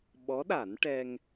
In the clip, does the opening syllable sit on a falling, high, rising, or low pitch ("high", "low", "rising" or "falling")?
rising